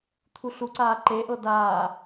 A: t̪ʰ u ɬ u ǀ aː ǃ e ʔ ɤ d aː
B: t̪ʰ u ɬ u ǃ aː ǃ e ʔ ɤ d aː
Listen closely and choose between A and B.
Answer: A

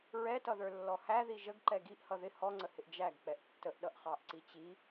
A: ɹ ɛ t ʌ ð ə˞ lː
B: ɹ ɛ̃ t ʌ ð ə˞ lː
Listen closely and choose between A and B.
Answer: A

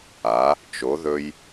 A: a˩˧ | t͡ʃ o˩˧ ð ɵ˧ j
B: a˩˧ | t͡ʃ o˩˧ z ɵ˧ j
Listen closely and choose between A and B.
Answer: A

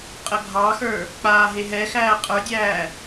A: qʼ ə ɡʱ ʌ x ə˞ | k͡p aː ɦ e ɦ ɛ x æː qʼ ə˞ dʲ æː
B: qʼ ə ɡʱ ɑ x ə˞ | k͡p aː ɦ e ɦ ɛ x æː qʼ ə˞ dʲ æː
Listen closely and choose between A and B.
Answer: B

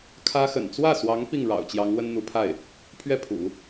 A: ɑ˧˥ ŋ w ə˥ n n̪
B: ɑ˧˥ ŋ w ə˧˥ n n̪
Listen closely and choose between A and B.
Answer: A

